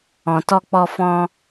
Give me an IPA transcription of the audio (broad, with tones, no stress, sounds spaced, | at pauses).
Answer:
ɔ̃˨ t ɔ˧ k͡p ɔ˧ f ɔ̃˦